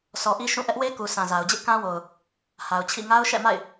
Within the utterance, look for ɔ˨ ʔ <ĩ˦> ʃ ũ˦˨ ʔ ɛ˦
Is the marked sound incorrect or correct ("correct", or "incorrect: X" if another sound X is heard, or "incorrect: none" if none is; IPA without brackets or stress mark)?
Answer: incorrect: i˦